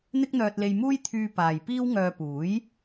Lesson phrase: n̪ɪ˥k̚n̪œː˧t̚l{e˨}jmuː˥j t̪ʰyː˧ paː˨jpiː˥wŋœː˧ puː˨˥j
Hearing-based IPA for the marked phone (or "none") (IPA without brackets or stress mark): e˧